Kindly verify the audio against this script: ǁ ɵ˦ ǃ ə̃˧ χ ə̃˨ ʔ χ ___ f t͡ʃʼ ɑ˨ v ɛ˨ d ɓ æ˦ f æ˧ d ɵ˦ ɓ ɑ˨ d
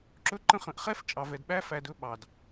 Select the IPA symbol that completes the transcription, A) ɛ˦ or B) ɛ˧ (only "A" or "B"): A